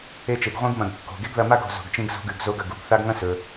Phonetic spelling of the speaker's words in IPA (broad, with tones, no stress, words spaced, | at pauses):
e˧t͡ʃe˩ɡ ʁʷĩ˧ɡmɐ̃˩ɡ kːo̤˩ ɡe˥ɡðɐ˧ ma˥ɡ o̤˩zo̤˩ɡ t͡ʃĩ˧ɡzo̤˧ɡʉ˩ɡ zo˧ɡɐ˩ɡ u˩ɡθa˧ɡ ŋɐ̃˥sɵ˩